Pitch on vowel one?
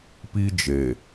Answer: high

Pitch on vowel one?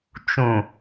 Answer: low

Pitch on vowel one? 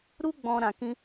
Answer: high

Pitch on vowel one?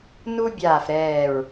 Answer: high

